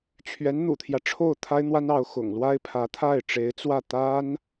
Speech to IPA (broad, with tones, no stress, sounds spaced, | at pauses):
t͡ɕʰ ɥ ɛ˧˥ n n̪ ṵ˨˩ t̪ʰ j ä˦ ʈ͡ʂʰ o˥˩ ʊ̯ t̪ʰ a˥ ɪ̯ n̪ w a˥ n ɑ˧˥ ʊ̯ x ʊ̰˨˩ ŋ l w a˥ ɪ̯ pʰ ä˧˥ t̪ʰ a˥˩ ɪ̯ ʈ͡ʂ e˧˥ ɪ̯ t͡s w ä˥˩ t̪ a˥ n